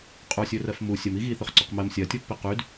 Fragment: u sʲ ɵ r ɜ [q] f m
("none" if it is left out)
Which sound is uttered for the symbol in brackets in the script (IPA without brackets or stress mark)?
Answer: none